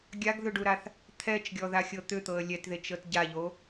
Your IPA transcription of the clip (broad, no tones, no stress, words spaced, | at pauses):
ɡʲaɡðʏɖuɾaθ | t̪ʰɛt͡ʃɡʲɔðaxʲɤ t̪ʏt̪ɤə̯ lʲɛtðet͡ʃɤt ɟaʎo